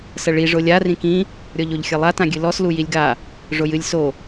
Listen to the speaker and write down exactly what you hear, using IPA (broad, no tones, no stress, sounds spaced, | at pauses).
s ɐ ɭ i ʐ o lʲ a r ĩ k ĩ | ɾʲ ɔ ʎ o ʎ xʲ ɐ lˠ a t ã ɡʲ ɨ l ɔ s l u j i lʲ ɡ a | ʐ o j ɨ lʲ s o